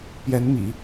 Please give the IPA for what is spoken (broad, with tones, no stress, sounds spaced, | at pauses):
p j ɛ˧˥ n m ḭ˨˩˦